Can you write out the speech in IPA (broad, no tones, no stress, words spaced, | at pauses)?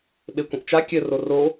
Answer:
ɓekʷə̃ʔt͡ʃa kʲɘ roro